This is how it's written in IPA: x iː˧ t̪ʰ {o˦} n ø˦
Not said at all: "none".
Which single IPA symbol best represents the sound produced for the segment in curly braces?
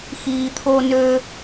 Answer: oː˦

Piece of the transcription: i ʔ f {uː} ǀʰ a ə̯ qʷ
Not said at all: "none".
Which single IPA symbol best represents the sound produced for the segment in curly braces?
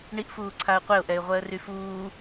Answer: uː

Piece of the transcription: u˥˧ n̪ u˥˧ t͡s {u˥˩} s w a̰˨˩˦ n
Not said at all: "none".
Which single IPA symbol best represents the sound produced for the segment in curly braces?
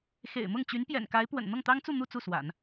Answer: u˥˩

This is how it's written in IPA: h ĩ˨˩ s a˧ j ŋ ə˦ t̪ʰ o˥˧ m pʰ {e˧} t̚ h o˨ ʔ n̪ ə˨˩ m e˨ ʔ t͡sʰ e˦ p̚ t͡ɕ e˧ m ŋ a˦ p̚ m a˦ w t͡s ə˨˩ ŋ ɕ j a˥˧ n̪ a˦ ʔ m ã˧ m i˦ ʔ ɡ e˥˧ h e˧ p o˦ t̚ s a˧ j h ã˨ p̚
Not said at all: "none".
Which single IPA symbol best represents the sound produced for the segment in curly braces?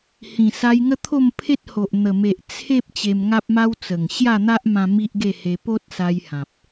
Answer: e˦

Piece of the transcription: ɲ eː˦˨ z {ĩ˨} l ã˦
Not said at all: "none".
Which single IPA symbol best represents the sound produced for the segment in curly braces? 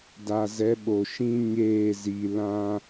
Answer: i˨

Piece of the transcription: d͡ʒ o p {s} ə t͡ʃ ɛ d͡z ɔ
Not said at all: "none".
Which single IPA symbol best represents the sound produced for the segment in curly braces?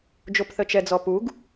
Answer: θ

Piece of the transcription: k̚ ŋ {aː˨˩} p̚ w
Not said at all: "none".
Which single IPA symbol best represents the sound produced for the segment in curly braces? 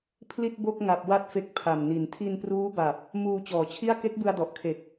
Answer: a˨˩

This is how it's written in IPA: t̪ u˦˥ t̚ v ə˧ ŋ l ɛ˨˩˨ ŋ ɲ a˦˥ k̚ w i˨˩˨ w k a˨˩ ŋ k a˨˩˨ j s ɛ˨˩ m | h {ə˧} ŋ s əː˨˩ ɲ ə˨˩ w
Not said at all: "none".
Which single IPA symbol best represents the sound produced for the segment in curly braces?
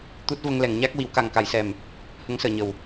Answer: ə˧˥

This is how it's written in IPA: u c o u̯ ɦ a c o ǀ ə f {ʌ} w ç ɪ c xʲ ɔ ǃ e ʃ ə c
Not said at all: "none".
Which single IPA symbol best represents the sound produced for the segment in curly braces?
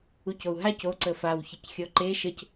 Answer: a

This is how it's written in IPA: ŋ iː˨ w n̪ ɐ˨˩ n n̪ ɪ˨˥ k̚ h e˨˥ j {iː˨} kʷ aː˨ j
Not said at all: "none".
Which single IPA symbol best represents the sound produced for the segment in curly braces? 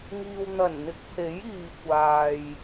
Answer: iː˨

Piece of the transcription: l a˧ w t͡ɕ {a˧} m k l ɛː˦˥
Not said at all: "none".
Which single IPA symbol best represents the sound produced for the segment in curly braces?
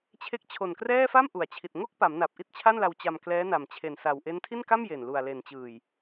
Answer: a˧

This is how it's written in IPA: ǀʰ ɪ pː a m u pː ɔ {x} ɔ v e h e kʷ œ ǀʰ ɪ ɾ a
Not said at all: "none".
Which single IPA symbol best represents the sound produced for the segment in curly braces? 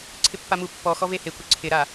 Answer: x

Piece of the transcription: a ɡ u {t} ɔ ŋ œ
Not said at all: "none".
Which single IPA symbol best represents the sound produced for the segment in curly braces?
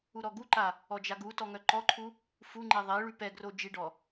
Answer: t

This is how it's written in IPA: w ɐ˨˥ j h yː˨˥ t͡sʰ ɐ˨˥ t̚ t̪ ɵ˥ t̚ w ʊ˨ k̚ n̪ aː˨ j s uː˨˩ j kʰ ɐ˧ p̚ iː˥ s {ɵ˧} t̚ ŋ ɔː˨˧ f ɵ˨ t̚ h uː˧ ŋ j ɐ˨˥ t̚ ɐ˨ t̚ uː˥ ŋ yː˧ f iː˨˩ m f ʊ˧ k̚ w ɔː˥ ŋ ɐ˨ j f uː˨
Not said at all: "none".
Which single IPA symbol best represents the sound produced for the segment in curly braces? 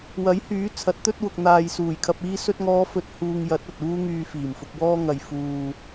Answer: ɵ˧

